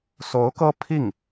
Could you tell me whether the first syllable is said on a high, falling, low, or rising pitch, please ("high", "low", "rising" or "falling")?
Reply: rising